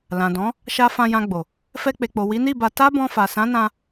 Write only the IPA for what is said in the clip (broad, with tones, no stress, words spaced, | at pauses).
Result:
lã˨dɔ̃˨˦ | ʃa˧ fã˧jã˧ɡ͡bo˨ | fɛ˧k͡pe˨k͡po˨ wi˨˦ni˦˨ba˧ ta˦bɔ̃˧fa˨ sã˨˦nã˧